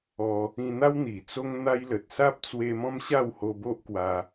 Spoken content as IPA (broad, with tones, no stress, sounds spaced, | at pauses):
ɔ˧ | ĩ˧ n̪ a˦ w n̪ i˨˩ t͡s o˦ ŋ n̪ a˦ j l ə˨ t̚ s a˦ p̚ t͡s w e˧ m ɔ̃˦ m ɕ a˥˧ w h o˧ b o˦ ʔ k w a˧